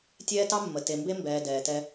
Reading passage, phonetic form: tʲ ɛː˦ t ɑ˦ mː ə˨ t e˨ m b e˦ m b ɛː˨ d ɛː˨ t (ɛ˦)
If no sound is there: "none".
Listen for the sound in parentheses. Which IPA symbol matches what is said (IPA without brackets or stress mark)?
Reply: ɛ˦